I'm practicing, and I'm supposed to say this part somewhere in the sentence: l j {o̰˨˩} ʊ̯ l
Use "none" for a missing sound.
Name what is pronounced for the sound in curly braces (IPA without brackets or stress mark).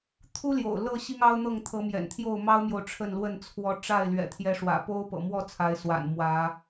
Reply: o̰˨˩